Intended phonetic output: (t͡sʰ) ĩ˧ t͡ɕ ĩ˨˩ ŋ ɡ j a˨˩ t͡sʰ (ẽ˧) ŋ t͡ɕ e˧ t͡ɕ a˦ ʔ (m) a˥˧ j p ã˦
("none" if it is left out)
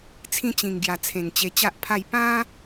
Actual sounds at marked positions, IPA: t͡sʰ, ẽ˨˩, pʰ

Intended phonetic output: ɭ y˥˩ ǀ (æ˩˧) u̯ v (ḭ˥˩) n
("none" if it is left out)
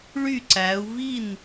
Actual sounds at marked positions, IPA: æ˩˧, i˥˩

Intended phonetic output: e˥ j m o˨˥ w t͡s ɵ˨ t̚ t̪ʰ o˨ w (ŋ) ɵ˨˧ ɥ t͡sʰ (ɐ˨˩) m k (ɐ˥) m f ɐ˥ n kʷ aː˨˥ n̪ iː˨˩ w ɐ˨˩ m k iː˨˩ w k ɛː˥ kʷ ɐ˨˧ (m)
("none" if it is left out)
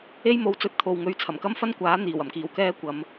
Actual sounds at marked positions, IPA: ŋ, ɐ˨˩, ɐ˥, m

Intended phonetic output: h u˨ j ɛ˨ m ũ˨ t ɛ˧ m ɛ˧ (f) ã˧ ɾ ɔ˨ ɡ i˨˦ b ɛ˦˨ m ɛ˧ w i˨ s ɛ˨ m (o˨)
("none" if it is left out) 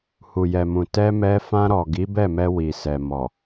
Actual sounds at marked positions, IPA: f, ɔ˨

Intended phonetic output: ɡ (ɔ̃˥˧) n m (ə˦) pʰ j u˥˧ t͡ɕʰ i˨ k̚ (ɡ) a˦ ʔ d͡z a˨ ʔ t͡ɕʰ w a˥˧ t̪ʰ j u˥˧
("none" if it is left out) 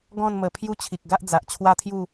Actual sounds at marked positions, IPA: ɔ̃˥˧, ə˨˩, ɡ

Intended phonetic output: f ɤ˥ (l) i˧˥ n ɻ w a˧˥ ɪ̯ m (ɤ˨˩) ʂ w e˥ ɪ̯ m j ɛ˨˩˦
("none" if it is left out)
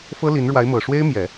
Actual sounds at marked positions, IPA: l, ɤ˨˩

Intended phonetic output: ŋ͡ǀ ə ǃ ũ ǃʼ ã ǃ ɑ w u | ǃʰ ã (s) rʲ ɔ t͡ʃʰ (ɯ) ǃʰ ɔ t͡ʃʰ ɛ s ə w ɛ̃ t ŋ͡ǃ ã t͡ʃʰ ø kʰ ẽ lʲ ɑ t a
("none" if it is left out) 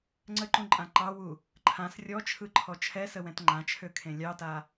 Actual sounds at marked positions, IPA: s, ɯ

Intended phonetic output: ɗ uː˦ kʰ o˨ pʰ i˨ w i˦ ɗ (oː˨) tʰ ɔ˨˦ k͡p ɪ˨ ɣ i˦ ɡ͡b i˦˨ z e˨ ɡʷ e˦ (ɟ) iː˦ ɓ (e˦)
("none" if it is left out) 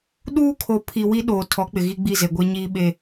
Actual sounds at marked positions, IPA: oː˨, ɲ, e˦

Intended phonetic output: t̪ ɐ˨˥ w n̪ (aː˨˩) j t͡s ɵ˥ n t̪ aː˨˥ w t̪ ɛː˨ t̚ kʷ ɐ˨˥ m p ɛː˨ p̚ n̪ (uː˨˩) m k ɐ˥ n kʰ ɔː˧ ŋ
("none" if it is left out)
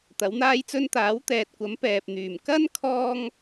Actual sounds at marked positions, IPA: aː˥, yː˨˩

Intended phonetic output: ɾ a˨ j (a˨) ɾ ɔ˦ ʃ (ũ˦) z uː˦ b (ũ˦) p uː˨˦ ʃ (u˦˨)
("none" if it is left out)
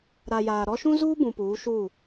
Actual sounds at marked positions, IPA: aː˨, ũ˦, ũ˨, u˦˨

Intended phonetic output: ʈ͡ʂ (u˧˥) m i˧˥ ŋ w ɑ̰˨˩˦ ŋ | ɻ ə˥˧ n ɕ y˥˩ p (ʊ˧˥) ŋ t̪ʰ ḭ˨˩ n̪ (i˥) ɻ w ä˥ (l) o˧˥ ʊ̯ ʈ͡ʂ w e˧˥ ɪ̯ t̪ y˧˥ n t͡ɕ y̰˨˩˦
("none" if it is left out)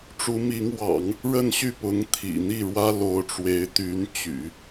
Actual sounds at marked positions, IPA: u˧˥, ʊ˧˥, i˥˩, l

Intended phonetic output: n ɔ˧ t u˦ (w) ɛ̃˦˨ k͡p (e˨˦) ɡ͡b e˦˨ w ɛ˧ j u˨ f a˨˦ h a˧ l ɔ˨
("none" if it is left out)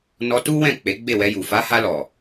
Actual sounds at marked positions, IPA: w, e˨˦

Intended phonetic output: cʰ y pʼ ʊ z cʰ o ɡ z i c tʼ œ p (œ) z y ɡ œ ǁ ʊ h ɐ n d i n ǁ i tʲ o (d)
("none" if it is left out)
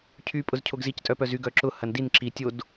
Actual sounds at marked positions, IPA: œ, d

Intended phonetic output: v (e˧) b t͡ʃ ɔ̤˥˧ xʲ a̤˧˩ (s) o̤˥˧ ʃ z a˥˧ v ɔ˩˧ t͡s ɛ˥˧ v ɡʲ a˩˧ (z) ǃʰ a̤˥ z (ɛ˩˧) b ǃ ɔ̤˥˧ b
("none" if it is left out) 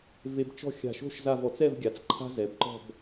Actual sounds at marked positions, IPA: e˧, ʃ, t͡s, ɛ˩˧

